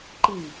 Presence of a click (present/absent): present